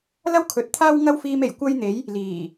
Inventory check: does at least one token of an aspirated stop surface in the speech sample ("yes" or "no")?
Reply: yes